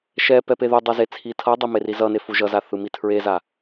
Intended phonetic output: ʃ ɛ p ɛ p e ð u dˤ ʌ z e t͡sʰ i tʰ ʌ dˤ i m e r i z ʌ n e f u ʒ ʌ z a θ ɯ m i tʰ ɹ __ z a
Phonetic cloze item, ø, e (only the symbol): e